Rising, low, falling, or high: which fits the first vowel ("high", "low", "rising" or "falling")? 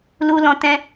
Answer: low